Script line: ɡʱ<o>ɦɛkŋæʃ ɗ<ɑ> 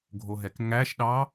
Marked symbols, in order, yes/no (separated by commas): yes, yes